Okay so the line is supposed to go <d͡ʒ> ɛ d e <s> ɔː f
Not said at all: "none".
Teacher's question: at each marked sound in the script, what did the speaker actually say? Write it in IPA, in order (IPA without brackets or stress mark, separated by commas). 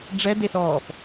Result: ɖ͡ʐ, s